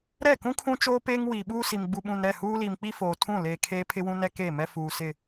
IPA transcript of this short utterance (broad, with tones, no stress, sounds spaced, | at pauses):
ɾ ɛ˦˨ k ũ˦ kʰ ũ˦ t͡ʃ oː˦ p eː˦ ŋ w iː˨ ɓ uː˦ s i˨ m ɡ͡b u˨ ɓ ũ˨ n ɾ ɛ˦˨ h uː˦ l iː˨ m k͡p i˦ f oː˨ tʰ ũ˦˨ l eː˨ kʰ eː˦ pʰ ɪ˦ w ũ˦ n ɛ˦ k eː˦˨ m ɛ˦ f uː˨ s ɪ˦˨